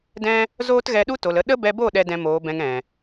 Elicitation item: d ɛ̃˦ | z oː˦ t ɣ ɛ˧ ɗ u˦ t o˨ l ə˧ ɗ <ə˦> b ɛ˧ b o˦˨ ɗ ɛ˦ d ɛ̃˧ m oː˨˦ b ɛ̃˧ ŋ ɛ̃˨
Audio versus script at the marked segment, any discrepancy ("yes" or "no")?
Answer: no